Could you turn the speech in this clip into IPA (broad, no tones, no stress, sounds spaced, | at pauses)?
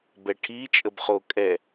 b ɛ ʈʰ i t͡ʃʼ ə b χ o kʼ ɛ